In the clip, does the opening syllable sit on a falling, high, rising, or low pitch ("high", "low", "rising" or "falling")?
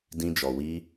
high